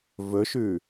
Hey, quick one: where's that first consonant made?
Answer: lips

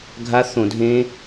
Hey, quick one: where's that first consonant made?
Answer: velum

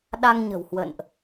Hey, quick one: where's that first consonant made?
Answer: tongue tip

